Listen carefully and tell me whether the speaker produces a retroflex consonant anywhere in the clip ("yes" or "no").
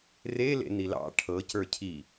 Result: yes